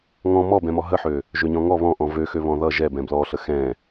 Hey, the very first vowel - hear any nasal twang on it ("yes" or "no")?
yes